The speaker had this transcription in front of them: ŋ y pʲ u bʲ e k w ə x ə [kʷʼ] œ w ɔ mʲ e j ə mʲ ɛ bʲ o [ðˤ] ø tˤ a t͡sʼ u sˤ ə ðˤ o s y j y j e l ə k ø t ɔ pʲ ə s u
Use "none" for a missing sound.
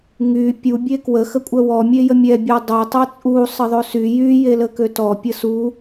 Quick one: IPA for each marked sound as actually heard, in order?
kʷʼ, dˤ

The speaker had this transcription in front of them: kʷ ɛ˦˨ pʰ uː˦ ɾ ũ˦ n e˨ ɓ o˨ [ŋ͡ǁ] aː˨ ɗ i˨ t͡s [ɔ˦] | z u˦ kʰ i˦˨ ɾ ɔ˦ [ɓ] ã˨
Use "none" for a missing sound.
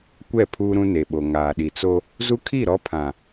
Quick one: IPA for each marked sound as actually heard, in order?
ŋ, o˦, pʰ

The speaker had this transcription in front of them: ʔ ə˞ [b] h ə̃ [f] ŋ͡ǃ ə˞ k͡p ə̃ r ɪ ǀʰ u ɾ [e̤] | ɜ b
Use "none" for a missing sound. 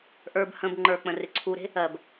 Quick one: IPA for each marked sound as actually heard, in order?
b, b, e̤

